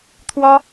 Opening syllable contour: high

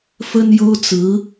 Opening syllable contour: high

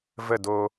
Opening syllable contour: falling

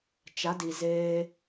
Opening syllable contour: rising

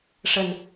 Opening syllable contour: low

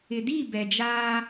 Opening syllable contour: low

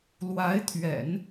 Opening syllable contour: rising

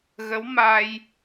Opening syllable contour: rising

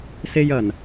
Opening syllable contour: high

